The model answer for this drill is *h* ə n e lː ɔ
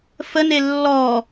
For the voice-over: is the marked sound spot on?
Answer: no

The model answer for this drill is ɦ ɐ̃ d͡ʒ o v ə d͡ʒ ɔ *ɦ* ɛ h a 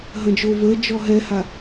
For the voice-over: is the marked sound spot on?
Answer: yes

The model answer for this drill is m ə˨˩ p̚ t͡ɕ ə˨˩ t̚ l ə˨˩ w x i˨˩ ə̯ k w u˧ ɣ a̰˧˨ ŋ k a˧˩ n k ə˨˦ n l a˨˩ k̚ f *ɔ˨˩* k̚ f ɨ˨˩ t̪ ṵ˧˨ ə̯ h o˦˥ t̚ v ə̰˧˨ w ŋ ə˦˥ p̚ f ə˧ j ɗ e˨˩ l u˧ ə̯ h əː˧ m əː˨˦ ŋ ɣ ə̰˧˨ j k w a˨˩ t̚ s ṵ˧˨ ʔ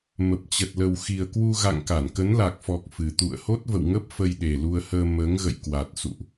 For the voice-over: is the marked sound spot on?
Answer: yes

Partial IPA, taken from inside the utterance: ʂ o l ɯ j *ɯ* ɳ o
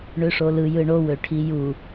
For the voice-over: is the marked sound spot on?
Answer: yes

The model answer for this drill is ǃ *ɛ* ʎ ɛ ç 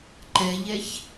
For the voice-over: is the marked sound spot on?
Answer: yes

